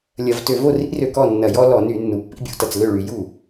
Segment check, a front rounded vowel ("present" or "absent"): present